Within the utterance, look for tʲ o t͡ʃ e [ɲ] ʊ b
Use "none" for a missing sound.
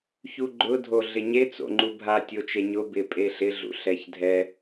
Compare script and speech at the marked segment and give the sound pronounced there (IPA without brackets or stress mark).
ɲ